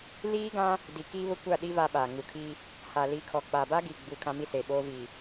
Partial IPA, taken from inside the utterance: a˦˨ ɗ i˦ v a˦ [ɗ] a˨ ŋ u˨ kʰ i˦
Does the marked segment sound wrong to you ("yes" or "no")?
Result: yes